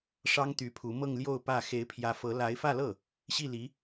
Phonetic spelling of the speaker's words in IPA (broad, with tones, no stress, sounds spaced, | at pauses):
ʂ ɑ˥ ŋ t̪ y˧˥ pʰ u˧˥ m ɤ˥˧ ŋ l j o˥˧ ʊ̯ p ä˥˩ x e˧˥ ɪ̯ pʰ j ä˧˥ f ɤ˧˥ l a˧˥ ɪ̯ f ä˥˧ l ɤ˥˩ | ɕ i˥˩ l i˧˥